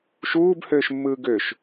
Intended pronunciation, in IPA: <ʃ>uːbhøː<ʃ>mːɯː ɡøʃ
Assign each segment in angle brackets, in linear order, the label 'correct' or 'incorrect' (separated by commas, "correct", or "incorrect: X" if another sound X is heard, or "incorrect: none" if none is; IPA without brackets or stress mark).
correct, correct